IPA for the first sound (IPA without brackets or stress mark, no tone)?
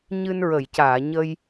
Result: ɲ